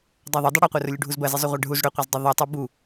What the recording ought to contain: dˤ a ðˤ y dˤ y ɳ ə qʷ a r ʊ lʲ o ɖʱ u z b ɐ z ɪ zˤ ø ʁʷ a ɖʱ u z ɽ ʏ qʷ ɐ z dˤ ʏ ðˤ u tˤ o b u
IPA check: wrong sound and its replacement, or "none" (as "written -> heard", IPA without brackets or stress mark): ɳ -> ɽ